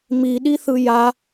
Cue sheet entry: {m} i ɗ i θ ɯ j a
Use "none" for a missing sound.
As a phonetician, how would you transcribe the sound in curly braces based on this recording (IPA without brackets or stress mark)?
m